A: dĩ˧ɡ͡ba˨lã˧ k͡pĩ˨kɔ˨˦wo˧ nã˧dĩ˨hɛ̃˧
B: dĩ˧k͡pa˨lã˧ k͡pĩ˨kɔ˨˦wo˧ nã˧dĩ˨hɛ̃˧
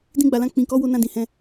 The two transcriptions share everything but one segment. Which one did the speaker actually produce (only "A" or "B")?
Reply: A